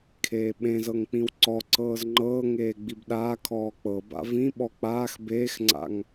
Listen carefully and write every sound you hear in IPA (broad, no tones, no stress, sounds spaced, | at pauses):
kʰ eː ɓ ẽ z ɤ ŋ k͡p ĩ w ǀ ɔ ǀ ɤː z ŋ͡ǃ ɤː ŋ eː ɡ͡b i b ɗ aː kʰ ɔː k͡p ɤ b a̰ v ĩ ɓ ɔ k͡p aː x b eː x ŋ͡ǀ a̰ ŋ